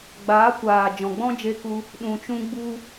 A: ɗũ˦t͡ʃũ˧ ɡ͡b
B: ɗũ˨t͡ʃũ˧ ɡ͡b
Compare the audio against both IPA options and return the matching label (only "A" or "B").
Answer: B